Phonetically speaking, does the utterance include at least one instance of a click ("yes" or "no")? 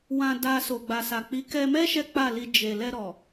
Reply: no